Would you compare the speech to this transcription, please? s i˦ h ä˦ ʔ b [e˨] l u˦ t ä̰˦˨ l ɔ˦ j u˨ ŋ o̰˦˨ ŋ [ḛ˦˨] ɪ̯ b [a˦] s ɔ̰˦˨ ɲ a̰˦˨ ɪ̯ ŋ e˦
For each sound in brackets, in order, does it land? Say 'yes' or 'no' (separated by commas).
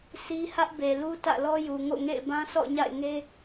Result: yes, yes, no